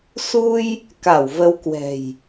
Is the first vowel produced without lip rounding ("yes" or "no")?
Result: no